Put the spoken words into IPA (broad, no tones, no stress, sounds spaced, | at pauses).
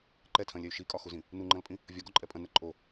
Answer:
ǃ ɛ tʰ ɐ̃ lʲ ɛ y̯ ʃ i kʼ ɒ x u z ĩ | n u ŋ͡ǃ ɐ̃ l pʼ ĩ | vʲ ɒ ɡ ɔ ǃʼ ɛ pʼ ɐ̃ n ɛ ǃʼ o